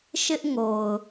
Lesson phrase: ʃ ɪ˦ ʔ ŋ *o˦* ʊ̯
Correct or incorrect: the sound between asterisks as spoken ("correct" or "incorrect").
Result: incorrect